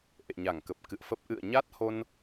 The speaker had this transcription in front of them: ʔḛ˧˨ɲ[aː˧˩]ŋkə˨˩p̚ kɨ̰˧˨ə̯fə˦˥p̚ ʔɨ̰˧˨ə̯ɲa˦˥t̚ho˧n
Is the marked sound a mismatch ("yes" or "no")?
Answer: yes